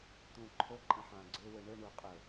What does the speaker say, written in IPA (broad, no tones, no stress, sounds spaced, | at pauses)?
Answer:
t̪ ũ ǃʰ ɵ ǃʼ ə̃ ħ ã ɡ͡ǀ ʏ w ɯ ɳ ɯ ɳ u qʼ ɵ